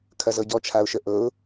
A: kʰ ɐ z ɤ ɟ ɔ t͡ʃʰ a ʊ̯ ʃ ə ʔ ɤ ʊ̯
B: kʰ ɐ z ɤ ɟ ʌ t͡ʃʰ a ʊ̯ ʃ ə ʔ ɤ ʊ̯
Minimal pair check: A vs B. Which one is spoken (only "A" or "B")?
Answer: A